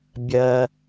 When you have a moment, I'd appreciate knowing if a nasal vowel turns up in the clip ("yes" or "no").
no